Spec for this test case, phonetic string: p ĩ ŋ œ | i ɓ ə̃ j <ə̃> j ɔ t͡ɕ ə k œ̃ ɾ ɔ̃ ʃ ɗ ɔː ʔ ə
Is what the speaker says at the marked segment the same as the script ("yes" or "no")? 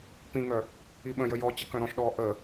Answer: no